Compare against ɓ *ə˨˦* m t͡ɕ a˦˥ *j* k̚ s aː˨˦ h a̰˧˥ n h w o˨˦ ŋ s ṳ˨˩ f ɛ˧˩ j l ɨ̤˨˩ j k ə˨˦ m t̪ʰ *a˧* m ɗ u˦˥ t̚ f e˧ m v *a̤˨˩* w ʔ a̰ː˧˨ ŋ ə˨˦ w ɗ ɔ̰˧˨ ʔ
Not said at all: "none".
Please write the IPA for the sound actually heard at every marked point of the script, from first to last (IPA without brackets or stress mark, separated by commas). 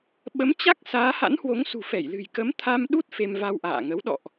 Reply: ə˨˦, none, a˧, a˧